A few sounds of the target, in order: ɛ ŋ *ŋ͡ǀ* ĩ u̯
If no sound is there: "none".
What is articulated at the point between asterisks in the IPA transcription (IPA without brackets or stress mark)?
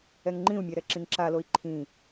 ŋ͡ǃ